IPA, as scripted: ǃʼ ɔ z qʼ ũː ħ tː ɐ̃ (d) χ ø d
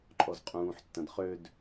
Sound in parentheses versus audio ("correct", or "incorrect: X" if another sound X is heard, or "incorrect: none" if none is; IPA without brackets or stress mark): correct